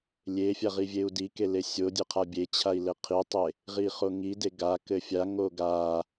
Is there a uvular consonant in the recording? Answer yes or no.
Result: yes